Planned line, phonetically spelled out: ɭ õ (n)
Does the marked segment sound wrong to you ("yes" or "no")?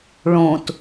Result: yes